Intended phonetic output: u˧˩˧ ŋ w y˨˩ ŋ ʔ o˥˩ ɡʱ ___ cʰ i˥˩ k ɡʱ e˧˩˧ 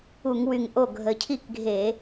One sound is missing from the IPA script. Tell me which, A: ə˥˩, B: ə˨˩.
B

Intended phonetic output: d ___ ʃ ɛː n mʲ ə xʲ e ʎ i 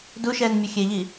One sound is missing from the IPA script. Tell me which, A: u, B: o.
A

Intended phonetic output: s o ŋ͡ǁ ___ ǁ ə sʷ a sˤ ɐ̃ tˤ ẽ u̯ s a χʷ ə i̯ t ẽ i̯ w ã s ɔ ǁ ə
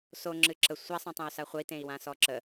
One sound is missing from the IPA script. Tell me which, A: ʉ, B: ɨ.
B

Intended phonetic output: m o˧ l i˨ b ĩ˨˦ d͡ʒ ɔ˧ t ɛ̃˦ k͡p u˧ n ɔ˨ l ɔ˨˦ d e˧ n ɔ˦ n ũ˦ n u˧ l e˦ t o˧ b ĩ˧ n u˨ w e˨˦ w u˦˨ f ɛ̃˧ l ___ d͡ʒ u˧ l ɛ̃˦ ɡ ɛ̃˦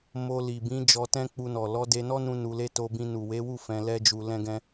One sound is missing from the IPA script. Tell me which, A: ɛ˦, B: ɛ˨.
A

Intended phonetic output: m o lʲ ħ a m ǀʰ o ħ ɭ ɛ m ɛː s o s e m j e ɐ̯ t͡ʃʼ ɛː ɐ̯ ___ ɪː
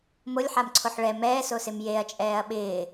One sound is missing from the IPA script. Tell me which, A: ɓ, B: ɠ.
A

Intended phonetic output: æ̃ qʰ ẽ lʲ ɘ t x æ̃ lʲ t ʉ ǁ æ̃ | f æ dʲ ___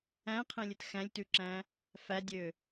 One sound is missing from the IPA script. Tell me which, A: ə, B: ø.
B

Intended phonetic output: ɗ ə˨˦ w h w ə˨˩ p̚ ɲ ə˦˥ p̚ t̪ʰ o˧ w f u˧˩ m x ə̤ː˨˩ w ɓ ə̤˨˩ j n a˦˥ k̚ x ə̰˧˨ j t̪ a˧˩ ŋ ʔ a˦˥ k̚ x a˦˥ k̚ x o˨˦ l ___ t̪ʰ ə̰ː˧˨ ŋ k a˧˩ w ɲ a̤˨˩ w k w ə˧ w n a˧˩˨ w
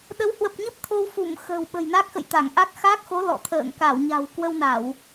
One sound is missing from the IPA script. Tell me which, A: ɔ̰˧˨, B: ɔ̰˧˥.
A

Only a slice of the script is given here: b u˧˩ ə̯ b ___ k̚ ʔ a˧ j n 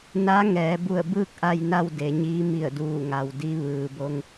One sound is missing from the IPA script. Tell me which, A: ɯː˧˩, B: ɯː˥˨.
B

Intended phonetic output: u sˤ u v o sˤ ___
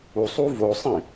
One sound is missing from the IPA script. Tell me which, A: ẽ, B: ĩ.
B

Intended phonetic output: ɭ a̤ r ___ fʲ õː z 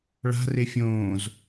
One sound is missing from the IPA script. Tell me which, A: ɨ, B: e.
B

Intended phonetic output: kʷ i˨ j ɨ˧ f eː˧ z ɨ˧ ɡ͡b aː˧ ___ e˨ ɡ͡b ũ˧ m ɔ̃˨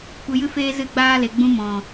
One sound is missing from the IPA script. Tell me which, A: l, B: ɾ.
A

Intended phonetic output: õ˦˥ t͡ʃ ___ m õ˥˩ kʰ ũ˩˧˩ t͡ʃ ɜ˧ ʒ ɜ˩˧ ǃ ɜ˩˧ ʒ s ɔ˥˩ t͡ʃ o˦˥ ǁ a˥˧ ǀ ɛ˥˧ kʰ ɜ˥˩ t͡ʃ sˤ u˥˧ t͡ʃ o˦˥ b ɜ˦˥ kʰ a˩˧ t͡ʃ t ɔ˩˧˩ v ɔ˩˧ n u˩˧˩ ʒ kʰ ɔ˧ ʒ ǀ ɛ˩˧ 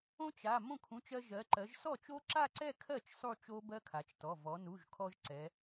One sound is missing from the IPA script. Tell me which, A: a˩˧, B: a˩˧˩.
B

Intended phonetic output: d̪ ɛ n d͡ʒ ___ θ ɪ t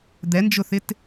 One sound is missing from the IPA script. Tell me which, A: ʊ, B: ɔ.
A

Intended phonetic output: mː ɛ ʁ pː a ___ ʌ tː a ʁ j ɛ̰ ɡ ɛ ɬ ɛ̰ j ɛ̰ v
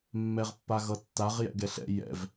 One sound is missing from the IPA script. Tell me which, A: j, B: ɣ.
B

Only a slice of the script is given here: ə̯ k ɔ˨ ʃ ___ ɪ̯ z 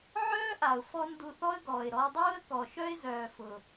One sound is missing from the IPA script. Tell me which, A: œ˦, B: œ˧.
A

